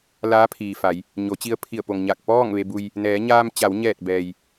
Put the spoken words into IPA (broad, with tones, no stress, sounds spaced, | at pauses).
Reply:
l aː˧˥ pʰ iː˩ f a˩˧ j | ɲ o˩˧ t͡ɕ i˧ ə̯ pʰ i˧˩ ə̯ p o˩ ŋ ɲ a˧˩ k̚ p ɔː˥˨ ŋ ʋ e˧ b u˧ j | n ɛː˩˧ ɲ aː˧ m t͡ɕ a˩˧ w ɲ ɛː˧˩ t̚ b ɛː˩ j